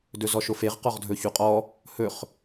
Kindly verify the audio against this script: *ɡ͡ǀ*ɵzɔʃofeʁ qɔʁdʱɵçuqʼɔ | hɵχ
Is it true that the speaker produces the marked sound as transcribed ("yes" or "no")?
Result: no